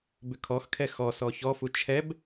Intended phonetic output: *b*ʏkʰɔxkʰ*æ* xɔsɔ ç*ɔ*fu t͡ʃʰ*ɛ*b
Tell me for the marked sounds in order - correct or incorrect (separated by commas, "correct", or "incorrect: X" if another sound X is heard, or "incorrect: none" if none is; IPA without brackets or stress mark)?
correct, incorrect: ɛ, correct, correct